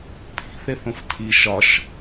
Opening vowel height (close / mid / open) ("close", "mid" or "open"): close